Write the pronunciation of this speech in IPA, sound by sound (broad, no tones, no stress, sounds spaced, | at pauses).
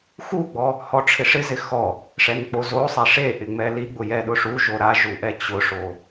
x u ɡ͡b ɔ | h ɔ ʈ͡ʂʰ ɪ ʂ ɪ z ɪ x ɔ | ʂ ɛ n k͡p o z o sˤ ɛ ʂ e ʔ ɪ ŋ͡m ɛ l i ɡ͡b ʊ j ɛ ɗ ʊ ʂ u ʒ o ɾ a ʒ u ʔ ɛ t͡ɕ ʊ ʂ o